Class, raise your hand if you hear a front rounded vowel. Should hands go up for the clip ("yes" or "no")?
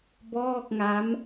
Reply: no